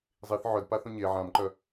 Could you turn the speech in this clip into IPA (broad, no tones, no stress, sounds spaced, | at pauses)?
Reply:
zˤ i θ ʕ œ d p a θ õ ɲ e ʕ ã m ǃ œ